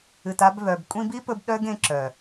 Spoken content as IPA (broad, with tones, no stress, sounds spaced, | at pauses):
ɨ˨ t a˧ b β œ˨ b kʷʼ ĩ˧ b i˦ p ɵ˧ b ɗ œ˦ ɡ ẽ˨˦ ǁ œ˨